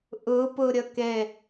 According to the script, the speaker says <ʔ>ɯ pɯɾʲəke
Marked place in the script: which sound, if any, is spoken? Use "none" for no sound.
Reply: ʔ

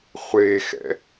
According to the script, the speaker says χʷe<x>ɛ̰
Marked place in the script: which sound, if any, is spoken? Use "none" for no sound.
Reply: x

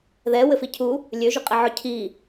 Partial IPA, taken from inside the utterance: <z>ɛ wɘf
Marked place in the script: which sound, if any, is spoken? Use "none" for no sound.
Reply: ð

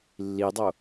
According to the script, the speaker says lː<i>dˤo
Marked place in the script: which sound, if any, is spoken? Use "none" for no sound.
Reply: i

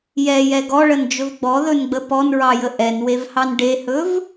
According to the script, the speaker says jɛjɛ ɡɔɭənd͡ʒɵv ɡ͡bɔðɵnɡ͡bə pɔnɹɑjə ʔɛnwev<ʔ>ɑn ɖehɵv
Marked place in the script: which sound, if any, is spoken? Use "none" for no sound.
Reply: h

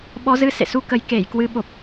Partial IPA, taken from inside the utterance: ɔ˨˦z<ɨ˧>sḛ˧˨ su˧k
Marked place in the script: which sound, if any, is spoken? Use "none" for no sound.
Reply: ɨ˧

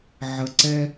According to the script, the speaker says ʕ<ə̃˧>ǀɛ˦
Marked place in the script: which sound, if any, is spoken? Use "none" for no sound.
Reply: ə˧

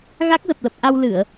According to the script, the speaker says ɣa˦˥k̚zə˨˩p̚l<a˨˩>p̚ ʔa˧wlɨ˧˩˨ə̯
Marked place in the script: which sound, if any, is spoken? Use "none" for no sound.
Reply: ə˨˩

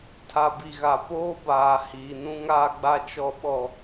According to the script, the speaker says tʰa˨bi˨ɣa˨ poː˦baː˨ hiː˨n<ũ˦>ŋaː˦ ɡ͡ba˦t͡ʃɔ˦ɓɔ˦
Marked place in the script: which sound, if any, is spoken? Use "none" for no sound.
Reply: ũ˦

